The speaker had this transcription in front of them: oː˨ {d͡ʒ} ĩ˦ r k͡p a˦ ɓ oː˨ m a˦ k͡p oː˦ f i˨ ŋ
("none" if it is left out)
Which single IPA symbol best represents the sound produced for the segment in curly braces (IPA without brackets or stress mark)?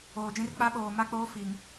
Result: d͡ʒ